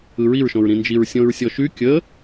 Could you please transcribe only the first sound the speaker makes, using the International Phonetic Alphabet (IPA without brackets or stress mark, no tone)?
ɯ